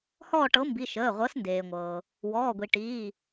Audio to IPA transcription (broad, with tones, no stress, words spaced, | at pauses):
hɔː˦˨ʈɤ˨˥mbi˩˧˩ ʃəː˩˧˩ʁʷɤ˨˥sndeː˩ŋʷɤː˩ | wɔː˩˧˩ɡʷi˩ ʈiː˩˧˩